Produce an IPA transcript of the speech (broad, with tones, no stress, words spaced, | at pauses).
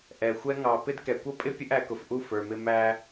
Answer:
ʔɛ˨xʷɛ˦ ŋɑ˨ pɪ˦dkɛ˨ kʷʌ˦pʼɪ˦ pʲə˦ʔæ˨kʊ˨fʔu˦˨ fə˞˨mɪ˦ mæ˦